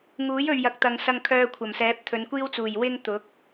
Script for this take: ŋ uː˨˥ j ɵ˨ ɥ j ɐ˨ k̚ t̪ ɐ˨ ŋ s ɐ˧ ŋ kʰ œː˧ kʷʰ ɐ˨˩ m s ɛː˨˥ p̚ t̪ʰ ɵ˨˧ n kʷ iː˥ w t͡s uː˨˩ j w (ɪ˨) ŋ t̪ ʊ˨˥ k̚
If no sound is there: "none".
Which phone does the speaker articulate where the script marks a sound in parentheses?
ɪ˥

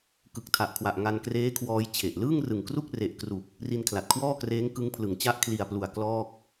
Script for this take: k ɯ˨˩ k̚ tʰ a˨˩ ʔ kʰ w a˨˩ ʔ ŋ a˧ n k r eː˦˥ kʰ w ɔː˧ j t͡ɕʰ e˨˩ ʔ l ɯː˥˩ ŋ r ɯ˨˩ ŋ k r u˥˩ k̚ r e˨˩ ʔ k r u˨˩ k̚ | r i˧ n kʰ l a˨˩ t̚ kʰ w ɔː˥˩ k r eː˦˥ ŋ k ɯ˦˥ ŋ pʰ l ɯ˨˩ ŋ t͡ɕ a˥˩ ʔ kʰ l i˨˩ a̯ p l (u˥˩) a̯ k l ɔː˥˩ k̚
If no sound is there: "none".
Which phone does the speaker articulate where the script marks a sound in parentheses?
u˨˩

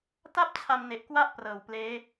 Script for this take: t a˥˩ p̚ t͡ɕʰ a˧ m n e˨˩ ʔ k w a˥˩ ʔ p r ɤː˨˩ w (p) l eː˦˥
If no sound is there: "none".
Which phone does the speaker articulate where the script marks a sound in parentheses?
p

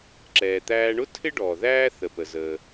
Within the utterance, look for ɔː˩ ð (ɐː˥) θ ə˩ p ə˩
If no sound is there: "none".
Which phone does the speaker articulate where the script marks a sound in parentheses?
æː˥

